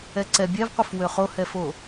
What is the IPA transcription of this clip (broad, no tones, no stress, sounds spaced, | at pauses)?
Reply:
ɛ ǀ ɛ bʲ ɛ v qʷ ɨ f w ø χ o h ɛ f o